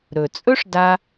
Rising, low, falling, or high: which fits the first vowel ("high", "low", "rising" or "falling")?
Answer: low